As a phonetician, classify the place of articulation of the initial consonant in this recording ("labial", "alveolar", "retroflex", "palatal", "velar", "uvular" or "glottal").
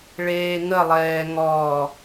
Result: retroflex